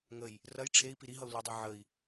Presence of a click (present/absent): absent